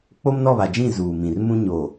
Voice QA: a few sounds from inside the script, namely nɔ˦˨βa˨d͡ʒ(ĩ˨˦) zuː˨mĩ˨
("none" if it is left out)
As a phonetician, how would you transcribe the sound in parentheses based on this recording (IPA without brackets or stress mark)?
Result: ĩ˦˨